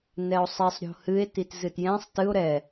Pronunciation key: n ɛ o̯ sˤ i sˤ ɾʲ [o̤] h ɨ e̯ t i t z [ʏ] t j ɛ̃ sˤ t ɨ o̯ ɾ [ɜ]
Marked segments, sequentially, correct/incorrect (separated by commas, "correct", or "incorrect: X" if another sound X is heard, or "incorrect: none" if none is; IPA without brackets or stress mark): correct, incorrect: ɨ, incorrect: ɛ